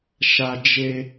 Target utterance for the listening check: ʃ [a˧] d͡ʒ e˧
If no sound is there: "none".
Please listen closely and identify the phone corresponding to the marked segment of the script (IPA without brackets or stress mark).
a˧